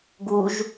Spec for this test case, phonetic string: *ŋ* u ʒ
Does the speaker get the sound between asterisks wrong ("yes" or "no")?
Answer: yes